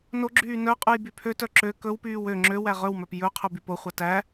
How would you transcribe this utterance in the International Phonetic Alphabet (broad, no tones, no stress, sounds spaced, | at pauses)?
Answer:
n o ɡ͡ǁ yː n œ qʼ ʉ j b y pʰ ø t œ ǁ ø k ɵ w p yː w ø ŋ͡ǁ ø w æ ʁ ɵ w m œ p j ɵ qʰ ɵ b y p o χʷ ɑ t æ